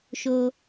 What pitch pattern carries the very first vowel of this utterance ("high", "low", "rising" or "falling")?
low